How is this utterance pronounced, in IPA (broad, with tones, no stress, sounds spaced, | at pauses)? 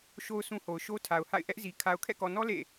ʃ o˦ ʊ̯ sʰ ũ˦ h o˨ ʊ̯ ʃ o˦ tʰ a˨ ʊ̯ h a̰˦˨ ɪ̯ ʔ ɛ˦ ʔ z i˨ kʰ a˨ ʊ̯ kʰ ɛ̰˦˨ k ɔ˨ n ɔ˦ l ḛ˦˨